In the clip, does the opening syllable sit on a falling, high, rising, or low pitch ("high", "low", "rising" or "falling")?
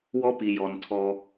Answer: high